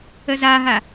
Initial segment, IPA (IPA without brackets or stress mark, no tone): ə